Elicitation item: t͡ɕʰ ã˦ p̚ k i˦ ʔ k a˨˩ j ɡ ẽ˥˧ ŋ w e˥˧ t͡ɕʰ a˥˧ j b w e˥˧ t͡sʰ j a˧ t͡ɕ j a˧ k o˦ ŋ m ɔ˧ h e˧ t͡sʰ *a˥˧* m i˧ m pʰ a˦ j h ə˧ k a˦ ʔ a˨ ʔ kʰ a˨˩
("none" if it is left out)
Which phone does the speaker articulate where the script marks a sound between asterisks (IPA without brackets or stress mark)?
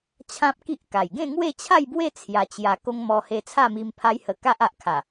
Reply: a˥˧